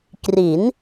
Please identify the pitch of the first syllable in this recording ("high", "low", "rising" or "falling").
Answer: rising